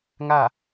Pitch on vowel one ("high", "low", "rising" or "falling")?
falling